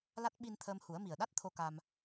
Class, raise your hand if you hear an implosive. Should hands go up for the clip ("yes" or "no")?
yes